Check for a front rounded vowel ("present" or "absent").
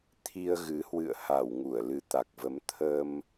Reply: absent